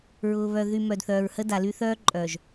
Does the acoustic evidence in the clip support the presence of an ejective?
yes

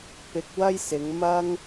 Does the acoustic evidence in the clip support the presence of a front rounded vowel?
no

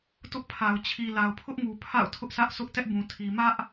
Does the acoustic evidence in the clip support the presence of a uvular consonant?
no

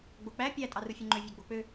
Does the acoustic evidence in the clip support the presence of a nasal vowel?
no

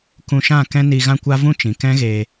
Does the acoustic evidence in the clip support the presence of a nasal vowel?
yes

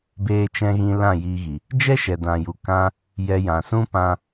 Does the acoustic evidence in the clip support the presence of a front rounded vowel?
no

